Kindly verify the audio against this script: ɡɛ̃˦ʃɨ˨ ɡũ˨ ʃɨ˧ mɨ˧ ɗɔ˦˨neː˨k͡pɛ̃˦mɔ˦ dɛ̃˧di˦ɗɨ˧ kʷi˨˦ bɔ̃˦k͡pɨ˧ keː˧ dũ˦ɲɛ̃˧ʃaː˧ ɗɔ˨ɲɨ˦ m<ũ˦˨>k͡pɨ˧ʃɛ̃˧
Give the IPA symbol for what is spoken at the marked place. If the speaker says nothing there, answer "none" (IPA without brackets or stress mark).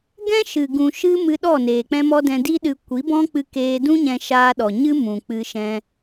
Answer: ũ˨